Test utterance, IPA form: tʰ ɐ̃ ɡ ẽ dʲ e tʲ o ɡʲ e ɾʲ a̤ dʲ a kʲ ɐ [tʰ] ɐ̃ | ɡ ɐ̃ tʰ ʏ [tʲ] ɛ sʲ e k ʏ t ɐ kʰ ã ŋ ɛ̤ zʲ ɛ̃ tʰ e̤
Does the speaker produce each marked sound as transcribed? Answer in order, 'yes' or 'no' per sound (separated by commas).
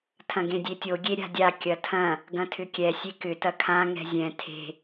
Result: yes, no